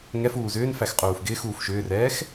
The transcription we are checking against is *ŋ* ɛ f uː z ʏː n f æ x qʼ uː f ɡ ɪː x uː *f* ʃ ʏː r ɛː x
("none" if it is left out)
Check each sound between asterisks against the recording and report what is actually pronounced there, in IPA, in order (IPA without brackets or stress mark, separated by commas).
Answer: ŋ, f